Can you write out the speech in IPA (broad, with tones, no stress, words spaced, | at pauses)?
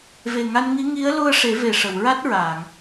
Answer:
ve˨˩ŋa˧nŋi˧˥ ŋi˧˥ə̯lu˧ə̯ ʂe˨˩˦ve˨˩ ʂə˨˩˨wɹa˦˥t̚ɹaː˨˩˨ŋ